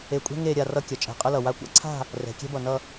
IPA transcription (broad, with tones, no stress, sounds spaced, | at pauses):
e˧ kʷʼ ɛ̤˥ ŋ e˥˧ ɾʲ a˥˧ r ʌ˥ kʲ ʌ˩˧ t͡ʃʼ ɛ̤˧˩ qʼ ə˥ l ʌ˧˩ w a˥ kʷ a̰˥ ǀʰ a̤˥˧ | r ɛ̤˩˧ kʲ ɛ̤˥ b ʌ˧˩ n ʌ˥˧